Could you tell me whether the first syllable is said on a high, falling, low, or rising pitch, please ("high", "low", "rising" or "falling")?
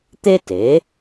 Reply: high